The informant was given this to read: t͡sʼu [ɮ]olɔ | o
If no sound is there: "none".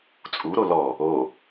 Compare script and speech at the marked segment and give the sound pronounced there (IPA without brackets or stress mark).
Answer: ɾ